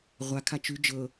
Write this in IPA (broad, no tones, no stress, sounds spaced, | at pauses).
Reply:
ʁʷ a kʰ a t͡ʃ ʉ d͡ʒ ɤ